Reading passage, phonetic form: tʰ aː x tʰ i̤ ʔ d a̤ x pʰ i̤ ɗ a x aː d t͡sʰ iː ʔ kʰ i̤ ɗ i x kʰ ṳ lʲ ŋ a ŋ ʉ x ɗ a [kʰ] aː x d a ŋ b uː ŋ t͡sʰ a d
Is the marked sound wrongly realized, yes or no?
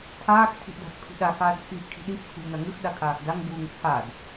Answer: no